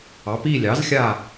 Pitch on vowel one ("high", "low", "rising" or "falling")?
rising